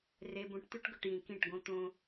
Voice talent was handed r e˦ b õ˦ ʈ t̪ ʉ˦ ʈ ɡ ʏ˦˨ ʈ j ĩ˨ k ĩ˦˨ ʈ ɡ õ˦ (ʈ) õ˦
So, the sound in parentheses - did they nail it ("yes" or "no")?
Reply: no